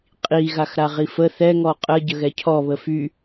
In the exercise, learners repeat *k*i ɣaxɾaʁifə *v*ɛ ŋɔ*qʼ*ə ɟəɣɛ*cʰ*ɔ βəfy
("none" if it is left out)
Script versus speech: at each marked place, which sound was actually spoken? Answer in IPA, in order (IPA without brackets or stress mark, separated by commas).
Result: qʼ, θ, qʼ, cʰ